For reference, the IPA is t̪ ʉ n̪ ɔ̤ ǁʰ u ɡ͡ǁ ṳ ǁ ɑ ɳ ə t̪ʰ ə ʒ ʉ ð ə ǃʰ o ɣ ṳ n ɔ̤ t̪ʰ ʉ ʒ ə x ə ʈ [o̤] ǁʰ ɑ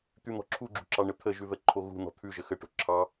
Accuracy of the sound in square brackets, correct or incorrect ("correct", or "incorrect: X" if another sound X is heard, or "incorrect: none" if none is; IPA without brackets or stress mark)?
correct